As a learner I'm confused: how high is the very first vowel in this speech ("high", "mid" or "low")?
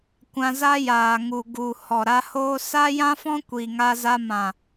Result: low